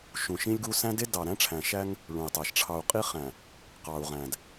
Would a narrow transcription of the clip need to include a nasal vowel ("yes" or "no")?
yes